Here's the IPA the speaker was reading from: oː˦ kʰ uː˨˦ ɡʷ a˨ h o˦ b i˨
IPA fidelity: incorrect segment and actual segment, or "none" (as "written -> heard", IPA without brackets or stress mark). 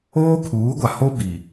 none